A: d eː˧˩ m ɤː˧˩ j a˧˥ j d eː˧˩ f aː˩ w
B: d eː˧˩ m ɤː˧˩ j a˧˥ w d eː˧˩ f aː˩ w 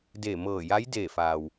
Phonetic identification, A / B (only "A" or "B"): A